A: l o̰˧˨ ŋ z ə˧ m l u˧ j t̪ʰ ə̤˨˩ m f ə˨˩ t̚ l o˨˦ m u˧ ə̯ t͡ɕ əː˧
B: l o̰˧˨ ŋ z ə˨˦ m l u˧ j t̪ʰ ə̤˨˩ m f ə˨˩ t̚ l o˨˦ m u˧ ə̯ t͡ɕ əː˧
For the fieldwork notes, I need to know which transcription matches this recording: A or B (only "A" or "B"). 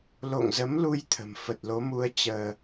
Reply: B